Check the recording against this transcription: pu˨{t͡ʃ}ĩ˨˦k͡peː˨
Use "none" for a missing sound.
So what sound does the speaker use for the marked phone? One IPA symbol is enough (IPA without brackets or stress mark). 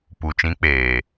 t͡ʃ